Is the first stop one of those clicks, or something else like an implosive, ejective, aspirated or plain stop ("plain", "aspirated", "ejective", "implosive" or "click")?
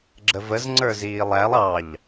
click